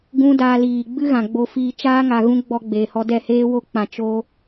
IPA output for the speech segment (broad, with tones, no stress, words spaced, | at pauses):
ɡũ˦daː˧ liː˨ɡ͡bɨ˦ɣã˨ ɡ͡bo˧fiː˧t͡ʃaː˦ŋa˨ ɣũ˦ɡ͡bɔ˧ ɡ͡beː˨hɔ˧ dɛ˦˨ heː˦wo˦k͡pã˨ t͡ʃo˧